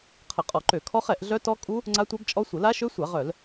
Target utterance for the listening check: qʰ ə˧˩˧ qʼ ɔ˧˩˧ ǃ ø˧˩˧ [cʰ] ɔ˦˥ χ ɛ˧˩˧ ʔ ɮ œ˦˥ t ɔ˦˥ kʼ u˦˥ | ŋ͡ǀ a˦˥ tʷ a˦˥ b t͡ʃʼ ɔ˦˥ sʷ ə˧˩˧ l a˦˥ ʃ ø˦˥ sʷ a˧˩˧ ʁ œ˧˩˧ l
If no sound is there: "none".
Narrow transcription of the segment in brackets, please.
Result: kʰ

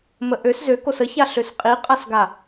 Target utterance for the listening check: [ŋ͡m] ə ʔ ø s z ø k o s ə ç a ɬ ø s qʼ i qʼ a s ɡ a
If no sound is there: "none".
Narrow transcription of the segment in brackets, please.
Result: m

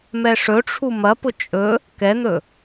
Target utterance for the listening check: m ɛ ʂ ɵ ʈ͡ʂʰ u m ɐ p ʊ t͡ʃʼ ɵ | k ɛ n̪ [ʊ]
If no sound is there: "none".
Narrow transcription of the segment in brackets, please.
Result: ɵ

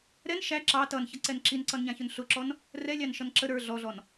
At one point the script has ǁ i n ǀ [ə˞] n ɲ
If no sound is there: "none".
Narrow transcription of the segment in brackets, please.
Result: ʌ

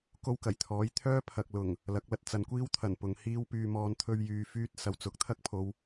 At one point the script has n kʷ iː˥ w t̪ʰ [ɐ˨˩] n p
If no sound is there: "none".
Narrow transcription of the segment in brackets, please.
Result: ɐ˨˩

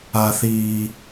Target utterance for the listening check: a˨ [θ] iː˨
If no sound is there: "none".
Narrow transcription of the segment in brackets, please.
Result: θ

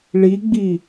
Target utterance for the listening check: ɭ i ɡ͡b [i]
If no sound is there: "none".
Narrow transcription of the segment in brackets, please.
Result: i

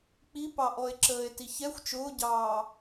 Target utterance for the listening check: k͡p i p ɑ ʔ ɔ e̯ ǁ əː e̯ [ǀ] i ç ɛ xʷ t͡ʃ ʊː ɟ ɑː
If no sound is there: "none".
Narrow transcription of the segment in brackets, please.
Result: t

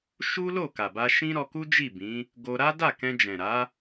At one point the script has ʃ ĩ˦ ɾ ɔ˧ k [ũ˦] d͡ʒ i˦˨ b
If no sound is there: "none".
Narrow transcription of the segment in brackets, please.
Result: u˦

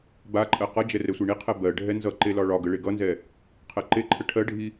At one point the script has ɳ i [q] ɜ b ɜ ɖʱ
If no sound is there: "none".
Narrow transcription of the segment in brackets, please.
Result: qʰ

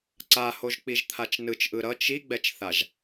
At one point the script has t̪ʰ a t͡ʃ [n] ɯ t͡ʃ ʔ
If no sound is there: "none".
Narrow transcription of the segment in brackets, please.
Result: n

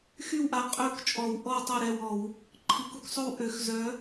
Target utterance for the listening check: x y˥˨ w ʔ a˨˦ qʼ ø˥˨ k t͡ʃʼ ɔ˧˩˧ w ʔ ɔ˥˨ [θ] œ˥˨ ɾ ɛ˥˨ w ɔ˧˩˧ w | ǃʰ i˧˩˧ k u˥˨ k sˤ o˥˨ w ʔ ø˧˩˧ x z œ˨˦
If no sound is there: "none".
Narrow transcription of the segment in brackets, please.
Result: tˤ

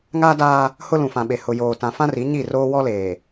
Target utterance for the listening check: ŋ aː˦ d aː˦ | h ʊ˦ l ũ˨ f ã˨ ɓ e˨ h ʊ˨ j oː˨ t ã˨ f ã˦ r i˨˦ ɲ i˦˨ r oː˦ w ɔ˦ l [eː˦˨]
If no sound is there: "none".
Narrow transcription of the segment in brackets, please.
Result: eː˨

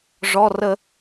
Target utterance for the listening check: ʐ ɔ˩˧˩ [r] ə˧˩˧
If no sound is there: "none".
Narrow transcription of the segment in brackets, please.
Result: r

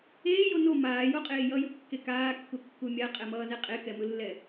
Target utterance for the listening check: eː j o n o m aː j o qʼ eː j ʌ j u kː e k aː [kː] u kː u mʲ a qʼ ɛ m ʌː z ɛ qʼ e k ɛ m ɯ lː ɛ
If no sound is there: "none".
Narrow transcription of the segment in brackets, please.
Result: kː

